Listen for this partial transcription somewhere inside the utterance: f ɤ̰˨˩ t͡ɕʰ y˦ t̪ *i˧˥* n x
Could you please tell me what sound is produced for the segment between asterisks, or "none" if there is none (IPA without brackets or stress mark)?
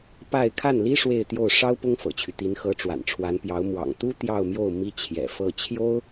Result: i˧˥